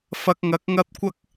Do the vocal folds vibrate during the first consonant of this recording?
no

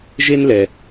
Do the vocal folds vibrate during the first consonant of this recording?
yes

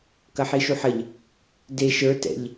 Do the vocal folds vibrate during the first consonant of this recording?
no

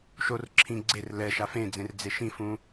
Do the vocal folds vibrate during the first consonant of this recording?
no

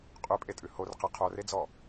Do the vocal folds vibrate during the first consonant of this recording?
no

